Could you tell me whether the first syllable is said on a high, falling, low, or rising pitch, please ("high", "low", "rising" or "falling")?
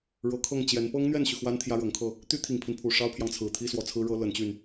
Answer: rising